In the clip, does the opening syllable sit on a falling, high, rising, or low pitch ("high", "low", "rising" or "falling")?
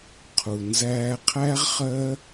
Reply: low